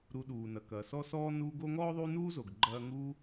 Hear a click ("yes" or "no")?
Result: yes